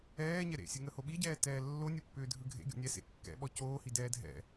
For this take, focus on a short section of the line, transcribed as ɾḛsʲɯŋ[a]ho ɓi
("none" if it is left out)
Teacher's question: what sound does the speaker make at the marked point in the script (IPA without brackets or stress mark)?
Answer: ə